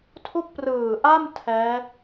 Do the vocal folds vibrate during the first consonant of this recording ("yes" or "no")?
no